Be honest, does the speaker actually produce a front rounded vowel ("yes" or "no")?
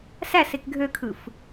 yes